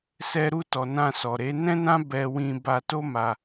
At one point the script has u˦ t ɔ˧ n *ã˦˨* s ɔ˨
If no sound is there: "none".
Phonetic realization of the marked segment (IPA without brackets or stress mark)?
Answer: ã˧